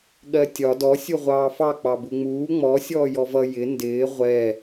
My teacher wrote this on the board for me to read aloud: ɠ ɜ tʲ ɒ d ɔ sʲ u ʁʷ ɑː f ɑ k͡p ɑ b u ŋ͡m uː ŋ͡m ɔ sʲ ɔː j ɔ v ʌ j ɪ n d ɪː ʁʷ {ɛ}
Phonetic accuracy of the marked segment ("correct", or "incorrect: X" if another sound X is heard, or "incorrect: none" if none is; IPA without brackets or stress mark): correct